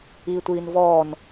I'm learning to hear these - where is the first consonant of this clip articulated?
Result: tongue tip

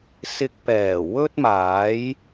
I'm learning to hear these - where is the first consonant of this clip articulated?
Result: tongue tip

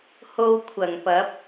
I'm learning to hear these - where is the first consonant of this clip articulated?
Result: throat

